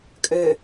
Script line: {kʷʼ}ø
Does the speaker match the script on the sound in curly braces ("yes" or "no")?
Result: no